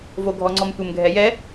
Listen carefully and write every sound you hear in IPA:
v o ɡʱ ɔ ŋ͡ǀ ɔ m tʷ ɘ m ɡʱ ɛ j ɛ

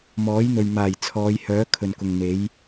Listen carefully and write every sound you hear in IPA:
m ɔː˨˥ j n̪ ɵ˨ ɥ m aː˨˩ j t͡sʰ ɔː˨˧ j h œː˨˥ kʰ ɵ˨ n k ʊ˨ ŋ n̪ e˨˥ j

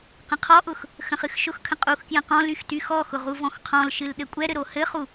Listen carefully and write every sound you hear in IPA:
q ə̃ qʰ ɔ ʔ ʊ x | x ə̃ χ ɨ x ʃ ʊ x kʰ ə̃ qʼ u x k j ə̃ q ɔ̃ l y x t y x ɔ x ʊ ʁ u v ɔ̃ x qʰ ɔ̃ l ʃ ɨ l ɗ ɘ kʷʼ ɛ ɾ ɘ ɾ o h ɘ χ u

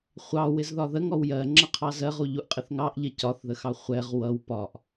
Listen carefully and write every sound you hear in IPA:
χʷ ɑ w ɪ z ð ɒ ð ə ŋ ɔ w j ɜ ŋ͡ǁ ʌ qʰ ɑ z ɜ ʁ u ʎ u ʔ qʼ ɪ θ ŋ ɑ ʔ ʎ ɪ c ɒ θ ð ə x ɑ χʷ ɛ ʁ w ʌ w p ɒ ʔ

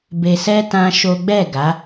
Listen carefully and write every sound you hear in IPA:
b e˧ s ɛ˦ t ã˦ ʃ o˦ ɡ͡b ɛ˦˨ ɡ a˨˦

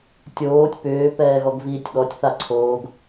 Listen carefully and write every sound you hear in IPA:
tʲ oː tʲ p ʏː p ɛː ɣ ɔ ɡ v iː tʲ ɠ ɔ tʲ θ a ǀʰ oː ɡ

